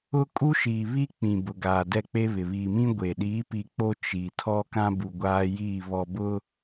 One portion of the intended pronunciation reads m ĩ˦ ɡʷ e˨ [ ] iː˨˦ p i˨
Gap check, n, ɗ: ɗ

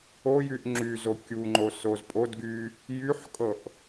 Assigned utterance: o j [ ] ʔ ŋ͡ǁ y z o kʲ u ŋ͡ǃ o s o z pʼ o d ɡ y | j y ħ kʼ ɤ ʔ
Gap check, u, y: y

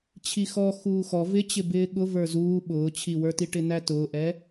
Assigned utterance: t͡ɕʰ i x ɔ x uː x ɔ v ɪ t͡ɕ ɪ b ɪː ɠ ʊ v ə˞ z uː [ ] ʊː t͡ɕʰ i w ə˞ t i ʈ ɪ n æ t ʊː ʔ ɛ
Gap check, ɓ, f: ɓ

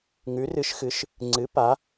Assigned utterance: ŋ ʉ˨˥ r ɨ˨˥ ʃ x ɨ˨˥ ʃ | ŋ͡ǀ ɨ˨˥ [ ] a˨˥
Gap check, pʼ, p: p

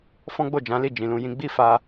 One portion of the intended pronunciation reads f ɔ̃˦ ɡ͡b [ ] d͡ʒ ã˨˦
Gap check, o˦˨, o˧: o˦˨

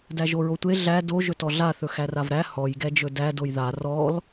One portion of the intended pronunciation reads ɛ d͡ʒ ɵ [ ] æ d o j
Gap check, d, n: d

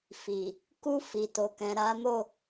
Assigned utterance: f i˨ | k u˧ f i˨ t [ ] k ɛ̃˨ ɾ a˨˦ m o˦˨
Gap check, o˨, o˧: o˨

